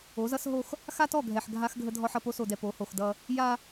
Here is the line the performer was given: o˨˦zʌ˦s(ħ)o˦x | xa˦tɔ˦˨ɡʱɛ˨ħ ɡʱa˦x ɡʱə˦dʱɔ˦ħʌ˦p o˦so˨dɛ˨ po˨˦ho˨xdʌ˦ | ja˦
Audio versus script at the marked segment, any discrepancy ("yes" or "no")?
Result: yes